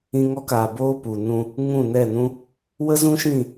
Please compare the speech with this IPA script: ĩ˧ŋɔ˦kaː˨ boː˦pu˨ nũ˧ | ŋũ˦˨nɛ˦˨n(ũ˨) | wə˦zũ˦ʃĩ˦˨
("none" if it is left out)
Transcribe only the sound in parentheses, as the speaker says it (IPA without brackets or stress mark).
ũ˦